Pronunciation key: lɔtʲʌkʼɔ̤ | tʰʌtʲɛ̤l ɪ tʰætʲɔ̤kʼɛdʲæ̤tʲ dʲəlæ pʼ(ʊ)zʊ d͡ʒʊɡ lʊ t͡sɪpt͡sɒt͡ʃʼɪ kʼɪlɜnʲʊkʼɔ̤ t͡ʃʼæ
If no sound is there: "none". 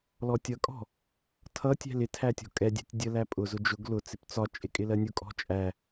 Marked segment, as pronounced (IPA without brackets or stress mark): ʊ